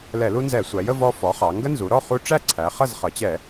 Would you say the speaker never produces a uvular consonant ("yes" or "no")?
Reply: no